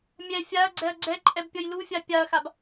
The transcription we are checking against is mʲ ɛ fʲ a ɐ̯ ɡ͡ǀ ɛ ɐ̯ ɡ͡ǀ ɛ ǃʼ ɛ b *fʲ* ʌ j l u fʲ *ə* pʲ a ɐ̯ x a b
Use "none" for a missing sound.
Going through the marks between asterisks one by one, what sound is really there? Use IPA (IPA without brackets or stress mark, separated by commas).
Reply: pʲ, a